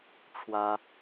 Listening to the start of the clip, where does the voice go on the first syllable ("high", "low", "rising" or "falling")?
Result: high